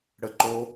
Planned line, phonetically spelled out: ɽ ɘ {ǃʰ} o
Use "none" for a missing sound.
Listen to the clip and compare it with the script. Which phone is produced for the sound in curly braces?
ǃ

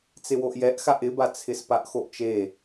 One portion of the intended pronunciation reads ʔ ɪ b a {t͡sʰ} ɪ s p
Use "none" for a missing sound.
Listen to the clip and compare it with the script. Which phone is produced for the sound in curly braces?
t͡sʰ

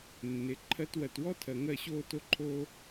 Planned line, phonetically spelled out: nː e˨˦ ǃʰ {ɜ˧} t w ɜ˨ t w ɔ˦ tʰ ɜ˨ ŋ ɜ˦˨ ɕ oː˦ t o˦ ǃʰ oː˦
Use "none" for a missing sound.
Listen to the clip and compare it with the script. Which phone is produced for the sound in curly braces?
ɜ˧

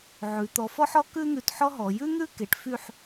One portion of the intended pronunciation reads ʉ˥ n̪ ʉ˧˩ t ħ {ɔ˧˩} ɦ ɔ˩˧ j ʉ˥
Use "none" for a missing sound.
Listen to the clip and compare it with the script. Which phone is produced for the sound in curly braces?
ɔ˥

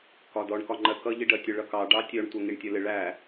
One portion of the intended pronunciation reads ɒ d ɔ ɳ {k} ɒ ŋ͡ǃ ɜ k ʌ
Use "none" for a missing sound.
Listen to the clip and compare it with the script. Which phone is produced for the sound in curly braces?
k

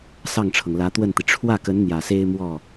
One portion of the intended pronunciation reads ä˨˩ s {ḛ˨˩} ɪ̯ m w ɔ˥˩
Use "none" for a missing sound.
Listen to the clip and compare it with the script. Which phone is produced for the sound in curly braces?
e˥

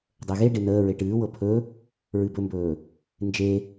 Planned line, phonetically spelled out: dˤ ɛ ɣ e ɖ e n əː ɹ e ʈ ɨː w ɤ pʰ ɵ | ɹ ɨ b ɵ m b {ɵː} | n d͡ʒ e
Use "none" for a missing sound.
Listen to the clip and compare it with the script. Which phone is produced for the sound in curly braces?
ɵː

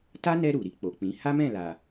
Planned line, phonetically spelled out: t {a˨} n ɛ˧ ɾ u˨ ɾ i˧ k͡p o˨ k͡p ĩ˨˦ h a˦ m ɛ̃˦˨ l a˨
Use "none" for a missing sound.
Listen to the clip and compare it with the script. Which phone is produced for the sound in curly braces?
a˦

